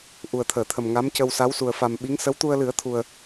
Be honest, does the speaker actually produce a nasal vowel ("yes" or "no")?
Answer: no